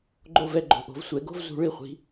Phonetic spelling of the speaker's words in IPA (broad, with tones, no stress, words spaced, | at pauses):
ɡ͡ǃo˥˨vɛ˥˨ɡ͡ǃo̤˧˩ ʔo̤˨˦vsʷɛ˨˩˦ɡo̤˥vzṳ˨˩˦ ɭi˧˩χʷi̤˨˦